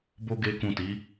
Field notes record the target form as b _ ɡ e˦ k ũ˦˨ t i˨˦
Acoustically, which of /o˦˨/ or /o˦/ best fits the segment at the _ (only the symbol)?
o˦